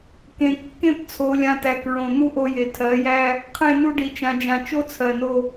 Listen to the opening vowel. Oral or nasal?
nasal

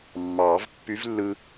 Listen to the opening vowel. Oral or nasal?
oral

